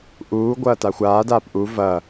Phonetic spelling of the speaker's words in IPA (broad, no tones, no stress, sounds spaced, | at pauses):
ʔ uː ɡʷ ɐː t a xʷ aː d aː p ʔ u v ɐː